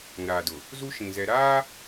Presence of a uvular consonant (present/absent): absent